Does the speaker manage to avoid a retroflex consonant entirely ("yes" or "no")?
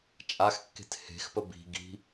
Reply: yes